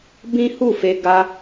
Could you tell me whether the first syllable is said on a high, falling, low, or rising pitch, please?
high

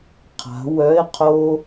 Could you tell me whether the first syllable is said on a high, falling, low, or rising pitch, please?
rising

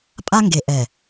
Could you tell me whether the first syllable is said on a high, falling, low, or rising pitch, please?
high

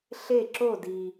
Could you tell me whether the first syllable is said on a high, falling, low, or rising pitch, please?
falling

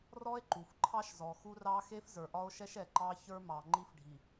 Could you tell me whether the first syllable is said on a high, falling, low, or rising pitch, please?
high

